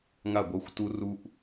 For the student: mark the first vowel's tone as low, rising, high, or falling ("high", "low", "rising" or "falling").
falling